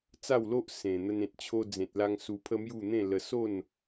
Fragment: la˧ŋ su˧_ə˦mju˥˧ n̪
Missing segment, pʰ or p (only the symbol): pʰ